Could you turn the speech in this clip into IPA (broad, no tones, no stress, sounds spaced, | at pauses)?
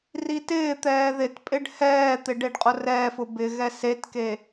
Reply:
r i t ɪː t̪ ɛː ð ɪ t pʼ ɪ ɖ h ɛː t̪ ɪ ɖ e ɖ qʼ ʊ r ɛː f ʊ b ɪ ɣ ɛ s e t k e